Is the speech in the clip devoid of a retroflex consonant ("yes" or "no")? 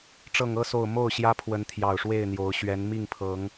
no